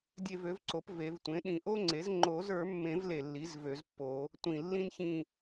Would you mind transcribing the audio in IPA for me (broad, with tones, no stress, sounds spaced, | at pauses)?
dʲ e˦˨ v ø˩˥ v ǀ o˩˥ p v e˨˩˦ v tʷ ẽ˩˥ ɗ ĩ˨˩ ʔ o˥ ŋ͡ǀ e˩˥ z ŋ͡ǃ o˨˩˦ z ə˞˨˩˦ mː ẽ˨˩˦ v l e˨˩ lː i˩˥ z v ø˨˩˦ z pː o˨˩˦ | tʷ ĩ˨˩ lː ĩ˥ n ç ĩ˦˨